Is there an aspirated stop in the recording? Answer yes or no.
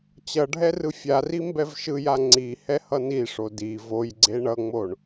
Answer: no